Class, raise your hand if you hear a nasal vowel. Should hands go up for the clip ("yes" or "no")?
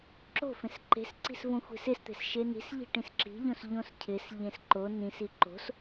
yes